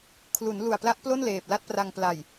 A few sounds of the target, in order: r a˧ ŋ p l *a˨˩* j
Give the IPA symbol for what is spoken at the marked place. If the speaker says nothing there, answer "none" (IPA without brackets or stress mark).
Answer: a˨˩